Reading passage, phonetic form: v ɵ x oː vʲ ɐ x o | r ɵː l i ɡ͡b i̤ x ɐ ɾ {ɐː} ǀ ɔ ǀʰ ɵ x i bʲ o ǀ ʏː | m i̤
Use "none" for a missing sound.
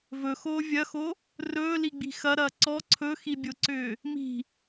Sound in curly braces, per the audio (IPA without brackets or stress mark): ɐː